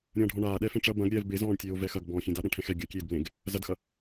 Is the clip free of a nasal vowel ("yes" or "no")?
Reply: no